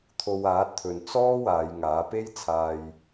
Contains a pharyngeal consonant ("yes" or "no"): no